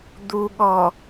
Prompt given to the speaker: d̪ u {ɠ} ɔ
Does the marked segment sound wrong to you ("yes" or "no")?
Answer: no